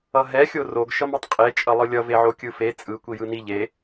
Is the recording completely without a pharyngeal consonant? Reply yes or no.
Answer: no